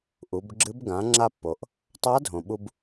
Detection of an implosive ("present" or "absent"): present